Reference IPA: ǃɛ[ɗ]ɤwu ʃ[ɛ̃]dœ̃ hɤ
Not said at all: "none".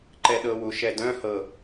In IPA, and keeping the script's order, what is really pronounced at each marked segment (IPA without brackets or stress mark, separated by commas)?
ɗ, ɛ